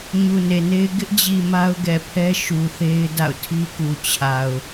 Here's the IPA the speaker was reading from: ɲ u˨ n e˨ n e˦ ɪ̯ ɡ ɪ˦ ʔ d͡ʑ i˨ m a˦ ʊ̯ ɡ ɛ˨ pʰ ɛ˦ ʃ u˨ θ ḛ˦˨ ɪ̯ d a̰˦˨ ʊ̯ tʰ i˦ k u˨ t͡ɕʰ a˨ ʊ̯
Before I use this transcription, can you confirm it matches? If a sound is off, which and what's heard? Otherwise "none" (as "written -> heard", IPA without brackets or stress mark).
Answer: ḛ˦˨ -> e˦